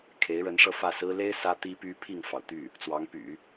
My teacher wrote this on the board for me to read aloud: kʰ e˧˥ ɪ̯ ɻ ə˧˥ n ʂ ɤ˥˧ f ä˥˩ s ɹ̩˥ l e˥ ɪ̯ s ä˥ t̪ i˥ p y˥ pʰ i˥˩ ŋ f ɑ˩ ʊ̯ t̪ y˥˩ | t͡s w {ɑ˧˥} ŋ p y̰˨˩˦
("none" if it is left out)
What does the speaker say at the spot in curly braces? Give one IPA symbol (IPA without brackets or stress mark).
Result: ɑ˧˥